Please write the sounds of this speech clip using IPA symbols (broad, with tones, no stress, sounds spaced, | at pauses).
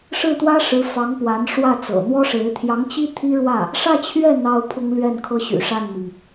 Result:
ʂ ɻ̩˥˩ t̪ w ä˥ ʂ ɻ̩˧˥ f ɑ˧˥ ŋ p w a˧˥ n ʂ w ä˥˩ t͡s ɤ̰˨˩ n̪ w ɔ˥ ʂ e˧˥ ɪ̯ t̪ʰ j ɑ˧˥ ŋ t͡ɕ i˥ t̪ʰ i˥ ɻ w ä˥˩ | ʂ ä˥˧ t͡ɕʰ ɥ ɛ˥˩ n̪ ɑ˥ ʊ̯ pʰ ʊ˥ ŋ l ɥ ɛ˥˩ n kʰ ɤ˥ ɕ y̰˨˩ ʂ a˥˩ n m i˩ ŋ